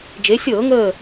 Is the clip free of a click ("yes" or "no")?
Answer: yes